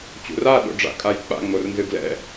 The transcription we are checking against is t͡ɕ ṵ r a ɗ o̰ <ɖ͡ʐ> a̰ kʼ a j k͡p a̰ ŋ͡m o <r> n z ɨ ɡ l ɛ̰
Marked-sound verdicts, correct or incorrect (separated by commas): correct, correct